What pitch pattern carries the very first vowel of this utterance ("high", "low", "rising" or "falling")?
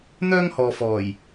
high